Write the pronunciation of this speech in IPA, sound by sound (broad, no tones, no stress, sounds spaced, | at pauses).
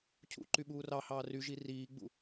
cʰ ṵ ǃ y ɓ uː r ɑ h ɑː r y ʒ i r iː ɡ͡b ṵ